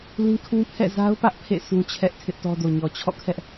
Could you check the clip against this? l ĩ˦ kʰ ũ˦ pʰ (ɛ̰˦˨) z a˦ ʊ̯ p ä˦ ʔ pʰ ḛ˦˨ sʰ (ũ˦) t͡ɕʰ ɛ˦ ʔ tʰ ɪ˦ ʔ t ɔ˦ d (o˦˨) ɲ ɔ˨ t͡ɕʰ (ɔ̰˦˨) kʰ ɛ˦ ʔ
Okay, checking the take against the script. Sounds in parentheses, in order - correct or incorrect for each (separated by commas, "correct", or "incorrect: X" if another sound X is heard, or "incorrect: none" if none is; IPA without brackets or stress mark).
correct, correct, incorrect: o˨, correct